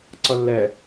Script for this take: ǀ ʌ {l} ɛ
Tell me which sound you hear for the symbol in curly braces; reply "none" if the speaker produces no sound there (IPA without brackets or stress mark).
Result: lː